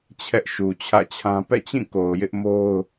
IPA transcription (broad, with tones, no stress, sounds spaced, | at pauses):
t͡ɕʰ ɛ˦ ʔ ʃ u˨ t͡ɕʰ ä̰˦˨ t͡ɕʰ ã˦ p ɛ̰˦˨ t͡ɕ ĩ˦˨ k o˨ ʊ̯ j ɪ˦ ʔ m o˦ ʊ̯